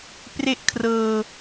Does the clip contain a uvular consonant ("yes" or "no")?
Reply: no